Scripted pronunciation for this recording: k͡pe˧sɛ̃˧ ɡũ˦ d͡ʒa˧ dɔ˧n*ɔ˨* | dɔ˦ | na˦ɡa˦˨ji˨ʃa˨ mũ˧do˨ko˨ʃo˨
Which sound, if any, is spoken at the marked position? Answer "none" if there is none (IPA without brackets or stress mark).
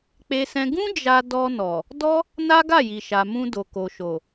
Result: ɔ˨